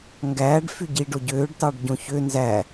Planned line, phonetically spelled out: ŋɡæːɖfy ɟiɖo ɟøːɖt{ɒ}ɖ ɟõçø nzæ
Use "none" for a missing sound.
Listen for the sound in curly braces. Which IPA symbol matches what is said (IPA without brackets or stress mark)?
ɑ